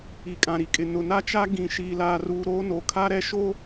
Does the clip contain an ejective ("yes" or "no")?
yes